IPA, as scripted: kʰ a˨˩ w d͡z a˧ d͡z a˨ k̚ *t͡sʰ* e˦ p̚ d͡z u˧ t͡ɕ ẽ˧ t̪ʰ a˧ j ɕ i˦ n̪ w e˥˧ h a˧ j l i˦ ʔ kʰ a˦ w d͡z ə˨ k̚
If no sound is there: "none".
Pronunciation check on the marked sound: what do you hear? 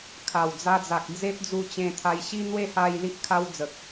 d͡z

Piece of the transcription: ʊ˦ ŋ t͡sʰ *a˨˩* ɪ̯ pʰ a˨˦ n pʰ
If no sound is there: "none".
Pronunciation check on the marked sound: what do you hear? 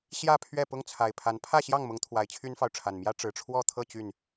a˨˩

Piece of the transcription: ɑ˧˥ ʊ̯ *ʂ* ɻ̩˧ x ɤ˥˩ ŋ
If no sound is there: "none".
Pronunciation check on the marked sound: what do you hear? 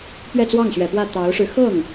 ʂ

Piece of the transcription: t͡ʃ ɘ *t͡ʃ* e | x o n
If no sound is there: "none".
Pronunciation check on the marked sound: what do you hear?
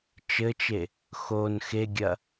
t͡ʃ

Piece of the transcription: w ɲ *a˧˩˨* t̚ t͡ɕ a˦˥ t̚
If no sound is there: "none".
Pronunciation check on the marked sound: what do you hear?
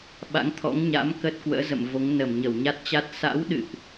a˦˥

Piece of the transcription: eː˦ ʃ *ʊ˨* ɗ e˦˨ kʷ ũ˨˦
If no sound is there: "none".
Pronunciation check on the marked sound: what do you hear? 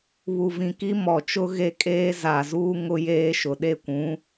ʊ˨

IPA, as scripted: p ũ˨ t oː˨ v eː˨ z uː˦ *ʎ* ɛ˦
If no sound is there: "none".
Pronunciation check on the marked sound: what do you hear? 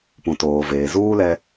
l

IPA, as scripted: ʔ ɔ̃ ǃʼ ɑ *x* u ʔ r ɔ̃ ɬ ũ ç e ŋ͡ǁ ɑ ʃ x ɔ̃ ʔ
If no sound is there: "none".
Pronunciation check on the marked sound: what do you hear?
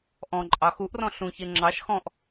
x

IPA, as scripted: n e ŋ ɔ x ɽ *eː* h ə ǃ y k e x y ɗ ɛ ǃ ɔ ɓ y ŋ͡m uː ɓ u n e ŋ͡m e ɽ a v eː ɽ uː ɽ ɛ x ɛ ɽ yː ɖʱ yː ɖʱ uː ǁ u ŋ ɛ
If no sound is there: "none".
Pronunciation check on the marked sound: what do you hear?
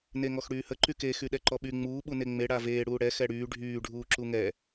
yː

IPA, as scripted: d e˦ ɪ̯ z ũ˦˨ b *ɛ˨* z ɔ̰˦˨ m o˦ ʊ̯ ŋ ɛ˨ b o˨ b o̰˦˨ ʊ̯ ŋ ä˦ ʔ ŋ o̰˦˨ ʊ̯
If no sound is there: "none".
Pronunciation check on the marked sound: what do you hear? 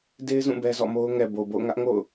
ɛ˦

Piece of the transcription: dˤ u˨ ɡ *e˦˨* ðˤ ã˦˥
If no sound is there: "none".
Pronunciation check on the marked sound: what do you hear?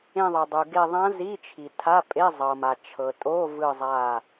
e˦˨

